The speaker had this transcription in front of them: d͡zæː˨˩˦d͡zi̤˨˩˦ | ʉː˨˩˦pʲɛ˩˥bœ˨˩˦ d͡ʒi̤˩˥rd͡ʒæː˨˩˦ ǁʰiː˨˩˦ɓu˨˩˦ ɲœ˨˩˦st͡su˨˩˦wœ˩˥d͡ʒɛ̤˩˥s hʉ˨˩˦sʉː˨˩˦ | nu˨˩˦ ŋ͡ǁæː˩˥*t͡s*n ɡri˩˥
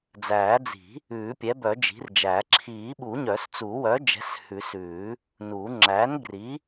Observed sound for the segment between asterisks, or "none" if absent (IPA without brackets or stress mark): none